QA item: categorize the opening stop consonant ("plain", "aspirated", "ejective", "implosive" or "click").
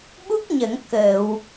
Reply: implosive